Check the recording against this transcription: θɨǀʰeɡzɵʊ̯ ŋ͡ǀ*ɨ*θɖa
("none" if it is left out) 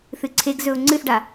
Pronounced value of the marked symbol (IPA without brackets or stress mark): ɨ